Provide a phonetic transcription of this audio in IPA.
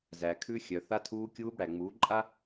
z æ˨ kʰ ʉ˧ xʲ œ˨ θ a˧ tʰ uː˧ kʲ uː˧ b ɽ æ˨ ŋ͡m uː˨˦ ǃʼ a˦

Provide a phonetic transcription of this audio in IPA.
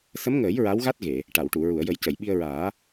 s ə˧˥ m ŋ əː˨˩˦ j ɹ a˧˥ w ɣ a˦˥ t̚ ɣ e˨˩˨ | ʈ a˨˩˨ w ʈ u˨˩˨ ɹ u˨˩˨ ə̯ j ə˨˩˦ j c ə˨˩˨ j ɓ i˧ ə̯ ɹ aː˨˩˦

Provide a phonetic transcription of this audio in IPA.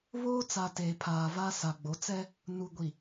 β oː˦ t͡s a˨ t eː˨ pʰ aː˨ v a˦ s a˨ ɡ͡b o˨˦ t͡s ɛ˦ | n u˨ ɡʷ i˨

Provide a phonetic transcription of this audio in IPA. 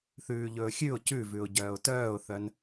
θ ʉː ʎ ɵː xʲ ʉ ʊ̯ c ʉ v ʉ ʊ̯ ɟ œː ʊ̯ t œː ʊ̯ θ œ n

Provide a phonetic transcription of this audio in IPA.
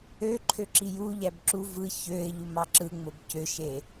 ø ǃʰ ø ǁ i j u ʎ æ b ǁ u v ɯ ç ø ɪ̯ ʎ u m ɑ ǁ ɯ ŋ͡m o b c ø ʃ e

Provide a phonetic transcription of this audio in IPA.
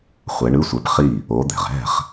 χʷ ɛ˨˦ ɳ ɯ˧˥˧ sʷ ɛ˨˦ p χ i˥˩ | o˨˦ d̪ ɛ̤˩ ʁ ɛ̤˥˩ χ

